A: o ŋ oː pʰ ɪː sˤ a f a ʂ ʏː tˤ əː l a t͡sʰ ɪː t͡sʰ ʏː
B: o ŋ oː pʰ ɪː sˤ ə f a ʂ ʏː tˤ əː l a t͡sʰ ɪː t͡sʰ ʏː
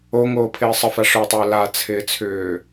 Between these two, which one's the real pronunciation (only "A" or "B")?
B